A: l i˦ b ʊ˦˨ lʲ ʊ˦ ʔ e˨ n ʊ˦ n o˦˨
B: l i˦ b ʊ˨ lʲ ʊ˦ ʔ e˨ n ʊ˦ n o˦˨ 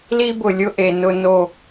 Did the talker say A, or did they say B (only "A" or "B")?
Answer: B